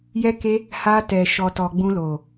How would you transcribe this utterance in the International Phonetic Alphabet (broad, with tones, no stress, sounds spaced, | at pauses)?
j ɛ˧ k e˧ | h a˧ t ɛ˨ ʃ ɔ˨ t ɔ˨ ɡ͡b ũ˧ l o˨